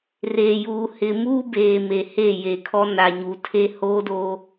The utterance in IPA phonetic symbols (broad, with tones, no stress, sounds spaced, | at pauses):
r eː˨ j uː˨ h ɪ˨ m uː˦ b eː˨ m e˨ h e˦˨ j e˨ kʰ ɔ˦ n a˨ ɲ u˨ tʰ e˦ h oː˦ d o˦